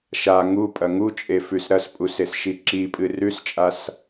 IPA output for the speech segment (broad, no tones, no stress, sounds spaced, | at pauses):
ʃ a ŋ u pʼ ɐ ŋ u t͡ʃʼ e f ʉ s ɾ ɐ s pʼ u s e s ʃ i ǁ i pʼ ɨ r ʉ s t͡ʃʼ a s